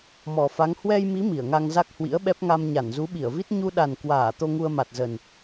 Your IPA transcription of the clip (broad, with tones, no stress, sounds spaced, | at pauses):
m ɔ˨˩ f a˨˦ ŋ h w ɛ˧ j m i˨˦ m i˧˩ ə̯ ŋ a˧ ŋ z a˦˥ k̚ h w ḭ˧˥ ə̯ ɓ ɛ˦˥ p̚ ŋ a˧ m ɲ a˧˩ n z u˨˦ ɓ i˧˩ ə̯ v i˦˥ t̚ ɲ u˧ ɗ a˨˩ n k w aː˧˩ t̪ o˧ ŋ u˧ ə̯ m a˨˩ t̚ z ə˨˩ n